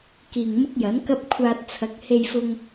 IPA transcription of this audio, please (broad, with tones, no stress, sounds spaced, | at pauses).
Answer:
k iː˨ ŋ m ʊ˥ k̚ j ɐ˨˥ n k ɐ˥ p̚ kʷʰ aː˧ t̚ t͡sʰ ɐ˨˥ k̚ h e˧ j f ʊ˧ ŋ